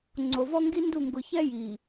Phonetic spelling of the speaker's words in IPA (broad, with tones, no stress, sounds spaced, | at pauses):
ŋ͡ǀ o˨ v ɔ˦ ŋ ɡ i˦ n d u˦˨ ŋ ɡ ʊ˨ ç ɛ˦ j i˨